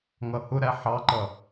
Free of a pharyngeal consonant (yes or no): no